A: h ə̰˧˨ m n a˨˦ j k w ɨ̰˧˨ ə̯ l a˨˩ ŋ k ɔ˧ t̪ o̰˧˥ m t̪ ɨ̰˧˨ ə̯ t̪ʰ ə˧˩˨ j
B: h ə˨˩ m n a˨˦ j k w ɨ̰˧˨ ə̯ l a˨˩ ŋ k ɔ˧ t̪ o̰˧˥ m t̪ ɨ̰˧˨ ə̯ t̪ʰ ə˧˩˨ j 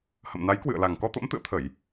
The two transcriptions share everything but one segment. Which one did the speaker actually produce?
A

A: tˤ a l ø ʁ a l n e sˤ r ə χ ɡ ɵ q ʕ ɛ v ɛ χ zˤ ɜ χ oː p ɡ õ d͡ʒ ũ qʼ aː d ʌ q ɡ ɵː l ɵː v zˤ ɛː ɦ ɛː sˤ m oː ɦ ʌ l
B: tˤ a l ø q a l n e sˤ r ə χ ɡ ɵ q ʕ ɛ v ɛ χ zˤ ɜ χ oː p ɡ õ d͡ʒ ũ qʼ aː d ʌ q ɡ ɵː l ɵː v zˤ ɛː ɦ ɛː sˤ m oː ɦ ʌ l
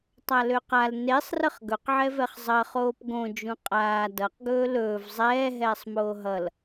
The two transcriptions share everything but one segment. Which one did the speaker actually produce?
B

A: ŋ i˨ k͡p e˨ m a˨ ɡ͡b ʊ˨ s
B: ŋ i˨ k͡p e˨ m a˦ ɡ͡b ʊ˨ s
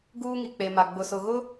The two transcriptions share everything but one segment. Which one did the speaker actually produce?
A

